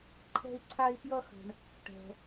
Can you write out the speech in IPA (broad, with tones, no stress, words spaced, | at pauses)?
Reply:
ǃʰɛ̤˦i̯ǀʰa˦i̯ pjʌ˦xə̤˩ɳ | ʈɛ̤˩